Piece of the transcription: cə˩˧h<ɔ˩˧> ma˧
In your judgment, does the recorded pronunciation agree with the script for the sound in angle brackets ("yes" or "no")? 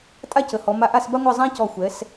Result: yes